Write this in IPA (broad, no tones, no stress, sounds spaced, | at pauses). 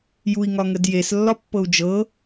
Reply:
j u i̯ ŋ ɒ ŋ ə d j e s lː ɒ pː ɤ u̯ d͡ʒ ɤ